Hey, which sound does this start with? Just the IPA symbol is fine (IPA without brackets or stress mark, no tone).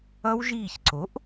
ʌ